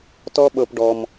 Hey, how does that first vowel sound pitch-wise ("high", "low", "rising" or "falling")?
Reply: high